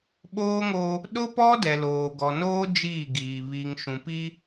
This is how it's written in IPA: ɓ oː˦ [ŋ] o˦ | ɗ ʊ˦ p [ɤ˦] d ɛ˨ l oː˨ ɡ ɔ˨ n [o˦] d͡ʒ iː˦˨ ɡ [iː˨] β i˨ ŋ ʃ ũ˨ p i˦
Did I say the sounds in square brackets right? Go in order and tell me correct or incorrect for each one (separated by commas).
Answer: correct, incorrect, incorrect, correct